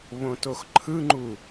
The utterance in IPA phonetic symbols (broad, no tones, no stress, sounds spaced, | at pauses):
β õ t o x ǃʰ ɯ ŋ͡ǃ u